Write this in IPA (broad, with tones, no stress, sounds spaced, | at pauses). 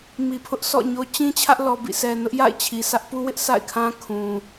m i˨ pʰ ʊ˦ ʔ sʰ ɔ̰˦˨ ɲ o˦ t͡ɕ ĩ˦ t͡ɕʰ ä˦ ʔ l ɔ˨ b ḭ˦˨ s ɛ˨ n ʊ˦ ʔ j a̰˦˨ ɪ̯ t͡ɕʰ i˨ sʰ ä˦ ʔ p u˦ w ɪ˦ ʔ sʰ a̰˦˨ ɪ̯ kʰ ã˦ kʰ ũ˨